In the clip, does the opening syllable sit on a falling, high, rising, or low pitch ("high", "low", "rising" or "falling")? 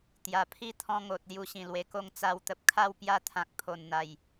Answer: low